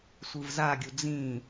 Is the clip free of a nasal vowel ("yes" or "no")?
no